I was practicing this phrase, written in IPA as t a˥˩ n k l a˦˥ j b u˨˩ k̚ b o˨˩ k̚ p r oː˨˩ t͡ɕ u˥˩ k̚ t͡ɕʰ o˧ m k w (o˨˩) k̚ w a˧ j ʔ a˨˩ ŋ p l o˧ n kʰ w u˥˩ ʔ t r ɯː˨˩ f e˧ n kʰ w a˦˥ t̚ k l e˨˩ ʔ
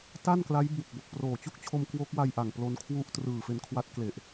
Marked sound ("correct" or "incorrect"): incorrect